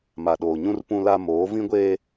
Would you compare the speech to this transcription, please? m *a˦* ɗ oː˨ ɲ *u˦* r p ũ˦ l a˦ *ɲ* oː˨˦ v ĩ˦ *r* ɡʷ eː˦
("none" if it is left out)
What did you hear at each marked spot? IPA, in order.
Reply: a˨, ũ˦, m, none

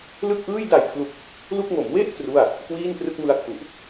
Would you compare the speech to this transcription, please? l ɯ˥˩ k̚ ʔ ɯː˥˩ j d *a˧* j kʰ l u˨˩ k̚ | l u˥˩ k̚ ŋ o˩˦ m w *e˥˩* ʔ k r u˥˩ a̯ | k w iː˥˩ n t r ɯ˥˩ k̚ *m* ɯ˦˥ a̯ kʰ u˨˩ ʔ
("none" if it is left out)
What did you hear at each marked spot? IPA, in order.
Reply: a˨˩, e˥˩, m

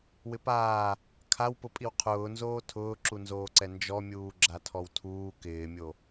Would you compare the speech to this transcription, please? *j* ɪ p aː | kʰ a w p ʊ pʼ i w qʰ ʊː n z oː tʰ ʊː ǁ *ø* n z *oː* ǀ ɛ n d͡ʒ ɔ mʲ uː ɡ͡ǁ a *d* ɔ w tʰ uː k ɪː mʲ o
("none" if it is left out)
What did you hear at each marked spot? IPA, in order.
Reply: w, u, oː, tʰ

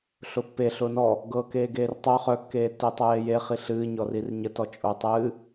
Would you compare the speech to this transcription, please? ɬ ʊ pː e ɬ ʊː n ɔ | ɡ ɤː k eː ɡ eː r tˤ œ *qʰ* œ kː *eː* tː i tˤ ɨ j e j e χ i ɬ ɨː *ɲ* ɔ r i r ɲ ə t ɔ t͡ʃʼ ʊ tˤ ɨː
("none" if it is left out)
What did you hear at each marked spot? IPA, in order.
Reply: χ, eː, ɲ

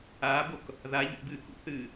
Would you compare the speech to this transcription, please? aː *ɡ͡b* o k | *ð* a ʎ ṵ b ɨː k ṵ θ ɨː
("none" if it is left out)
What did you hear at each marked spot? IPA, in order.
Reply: b, ð

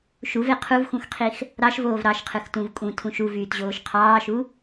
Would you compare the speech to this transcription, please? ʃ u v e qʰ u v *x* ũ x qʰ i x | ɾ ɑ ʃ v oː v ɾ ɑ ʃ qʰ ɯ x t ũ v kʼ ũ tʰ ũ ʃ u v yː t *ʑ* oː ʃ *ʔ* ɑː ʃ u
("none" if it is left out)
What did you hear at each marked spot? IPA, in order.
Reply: x, ʑ, qʰ

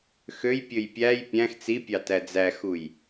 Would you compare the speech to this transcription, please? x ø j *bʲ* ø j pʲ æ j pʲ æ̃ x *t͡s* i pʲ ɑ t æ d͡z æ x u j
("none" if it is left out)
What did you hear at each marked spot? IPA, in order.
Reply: pʲ, t͡s

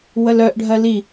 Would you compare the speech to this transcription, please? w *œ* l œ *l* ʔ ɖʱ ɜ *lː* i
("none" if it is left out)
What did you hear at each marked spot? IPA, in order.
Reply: ə, none, l

